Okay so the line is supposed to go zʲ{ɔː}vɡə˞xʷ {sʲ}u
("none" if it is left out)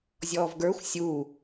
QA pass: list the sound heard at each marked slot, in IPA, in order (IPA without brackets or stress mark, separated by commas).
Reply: ɔː, sʲ